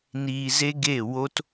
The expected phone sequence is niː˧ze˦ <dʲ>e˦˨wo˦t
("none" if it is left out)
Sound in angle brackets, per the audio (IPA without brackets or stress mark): ɡ